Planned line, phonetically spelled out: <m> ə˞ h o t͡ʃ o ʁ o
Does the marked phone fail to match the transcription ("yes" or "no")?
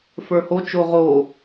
yes